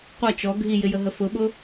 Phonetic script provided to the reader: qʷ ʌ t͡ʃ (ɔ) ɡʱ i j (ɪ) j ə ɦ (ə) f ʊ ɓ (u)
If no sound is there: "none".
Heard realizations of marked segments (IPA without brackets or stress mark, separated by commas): ɔ, ɪ, ə, ʊ